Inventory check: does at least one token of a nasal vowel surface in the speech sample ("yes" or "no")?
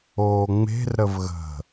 no